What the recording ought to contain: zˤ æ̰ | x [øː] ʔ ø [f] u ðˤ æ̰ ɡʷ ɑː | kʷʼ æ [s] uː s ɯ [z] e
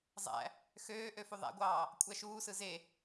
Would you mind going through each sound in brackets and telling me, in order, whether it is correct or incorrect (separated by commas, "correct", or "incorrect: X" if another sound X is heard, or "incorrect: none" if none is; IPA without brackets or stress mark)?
correct, correct, incorrect: ʃ, correct